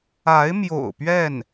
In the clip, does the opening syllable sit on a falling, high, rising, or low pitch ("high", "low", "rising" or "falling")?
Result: rising